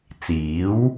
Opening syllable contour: rising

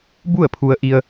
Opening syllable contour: falling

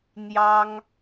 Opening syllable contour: high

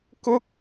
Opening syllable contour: high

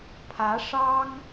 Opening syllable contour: rising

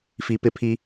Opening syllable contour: low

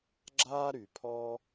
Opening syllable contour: high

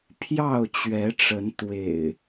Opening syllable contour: falling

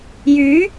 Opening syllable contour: rising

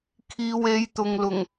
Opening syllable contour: low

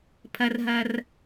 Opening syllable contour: low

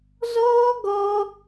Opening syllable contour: high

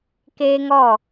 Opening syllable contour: high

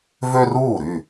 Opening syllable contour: high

